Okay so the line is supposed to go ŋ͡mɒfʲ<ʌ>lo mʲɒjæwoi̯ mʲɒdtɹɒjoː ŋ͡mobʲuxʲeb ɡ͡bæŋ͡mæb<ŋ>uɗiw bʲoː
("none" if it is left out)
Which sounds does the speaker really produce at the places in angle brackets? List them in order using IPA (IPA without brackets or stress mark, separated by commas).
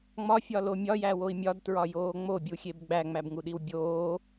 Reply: ɒ, ŋ